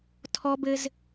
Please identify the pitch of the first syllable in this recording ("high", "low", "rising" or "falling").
high